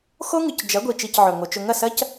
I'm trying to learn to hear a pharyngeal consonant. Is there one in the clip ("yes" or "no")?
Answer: yes